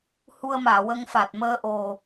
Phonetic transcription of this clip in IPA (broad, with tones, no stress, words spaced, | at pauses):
hu˧ə̯maː˨˩˨wə˧ŋfa˨˩t̚ məː˧ʔo˨˩